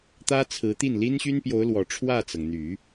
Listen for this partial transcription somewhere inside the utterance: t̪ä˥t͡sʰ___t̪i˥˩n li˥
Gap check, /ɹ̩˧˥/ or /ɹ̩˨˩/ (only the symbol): ɹ̩˧˥